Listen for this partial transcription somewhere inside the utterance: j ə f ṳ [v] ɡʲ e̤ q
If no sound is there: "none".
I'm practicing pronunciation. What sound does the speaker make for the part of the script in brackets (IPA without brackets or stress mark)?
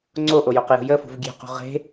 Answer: v